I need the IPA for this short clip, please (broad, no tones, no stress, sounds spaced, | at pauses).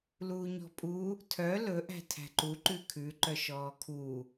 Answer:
l uː ɲ ɔ̤ pʼ u | tʰ œ l ɵ ʔ æ̤ tʰ æ̤ ǃ u ǃ ʉ kʰ ʉ ǃ œ ʃ ɔː kʰ u